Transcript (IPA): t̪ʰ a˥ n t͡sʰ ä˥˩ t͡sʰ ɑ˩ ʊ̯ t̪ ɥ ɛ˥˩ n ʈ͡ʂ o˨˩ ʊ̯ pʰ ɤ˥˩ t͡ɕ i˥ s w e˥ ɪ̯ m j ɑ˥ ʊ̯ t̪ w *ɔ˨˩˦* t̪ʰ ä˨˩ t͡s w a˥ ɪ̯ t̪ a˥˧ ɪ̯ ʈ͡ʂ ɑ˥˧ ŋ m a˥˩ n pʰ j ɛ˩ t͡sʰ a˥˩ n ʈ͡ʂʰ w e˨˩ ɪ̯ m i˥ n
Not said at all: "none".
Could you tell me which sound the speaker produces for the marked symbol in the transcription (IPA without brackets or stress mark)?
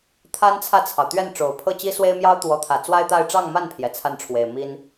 ɔ˧˥